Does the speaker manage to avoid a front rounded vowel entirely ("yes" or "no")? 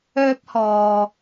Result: no